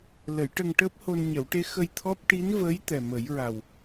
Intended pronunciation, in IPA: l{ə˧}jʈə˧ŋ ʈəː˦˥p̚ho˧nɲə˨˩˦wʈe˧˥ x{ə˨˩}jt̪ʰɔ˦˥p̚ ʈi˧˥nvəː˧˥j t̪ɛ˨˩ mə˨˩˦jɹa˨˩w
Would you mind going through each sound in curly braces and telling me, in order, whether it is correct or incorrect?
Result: incorrect, incorrect

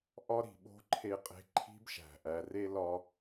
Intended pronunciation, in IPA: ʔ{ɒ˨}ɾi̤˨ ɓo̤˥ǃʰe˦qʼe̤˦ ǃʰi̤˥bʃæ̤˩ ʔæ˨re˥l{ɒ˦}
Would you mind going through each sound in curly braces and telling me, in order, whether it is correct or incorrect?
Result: incorrect, correct

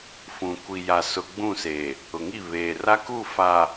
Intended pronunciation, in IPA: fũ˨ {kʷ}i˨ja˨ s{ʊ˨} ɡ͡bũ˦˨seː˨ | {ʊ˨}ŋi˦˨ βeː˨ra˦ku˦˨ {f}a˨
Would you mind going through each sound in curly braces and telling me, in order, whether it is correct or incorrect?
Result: correct, correct, correct, correct

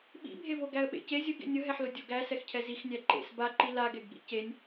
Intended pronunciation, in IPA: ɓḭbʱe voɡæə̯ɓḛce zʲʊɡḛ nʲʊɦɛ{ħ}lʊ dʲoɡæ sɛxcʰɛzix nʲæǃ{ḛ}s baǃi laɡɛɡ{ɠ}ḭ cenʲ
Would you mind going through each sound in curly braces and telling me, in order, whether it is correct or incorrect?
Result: correct, correct, correct

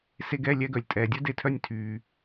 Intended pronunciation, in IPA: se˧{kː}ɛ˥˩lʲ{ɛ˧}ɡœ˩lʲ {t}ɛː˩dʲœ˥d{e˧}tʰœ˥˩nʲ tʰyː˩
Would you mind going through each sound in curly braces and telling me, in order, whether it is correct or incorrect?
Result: incorrect, correct, incorrect, correct

